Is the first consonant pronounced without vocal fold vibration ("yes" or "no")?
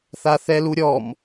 yes